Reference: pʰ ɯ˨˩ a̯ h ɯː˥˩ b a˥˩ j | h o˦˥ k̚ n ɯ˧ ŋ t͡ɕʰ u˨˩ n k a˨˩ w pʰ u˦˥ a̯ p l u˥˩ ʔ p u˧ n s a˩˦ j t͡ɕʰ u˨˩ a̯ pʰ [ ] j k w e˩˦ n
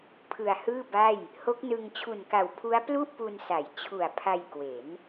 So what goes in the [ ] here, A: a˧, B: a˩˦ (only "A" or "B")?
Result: A